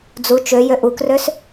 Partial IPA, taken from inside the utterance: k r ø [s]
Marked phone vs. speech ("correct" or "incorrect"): correct